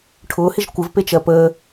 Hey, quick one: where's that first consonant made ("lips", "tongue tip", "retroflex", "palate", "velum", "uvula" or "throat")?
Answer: retroflex